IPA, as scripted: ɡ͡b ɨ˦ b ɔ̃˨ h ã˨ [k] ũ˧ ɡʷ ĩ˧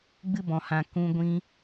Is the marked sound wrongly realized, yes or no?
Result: no